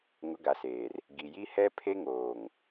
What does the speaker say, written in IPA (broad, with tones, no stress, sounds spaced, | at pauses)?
ŋ ʊ˨˦ ɡ a˨ s eː˨ r | ɡ i˨ j i˦ h ɛ˦ pʰ e˦ ŋ oː˨ ŋ